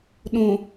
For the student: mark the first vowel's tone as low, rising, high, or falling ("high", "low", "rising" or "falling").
low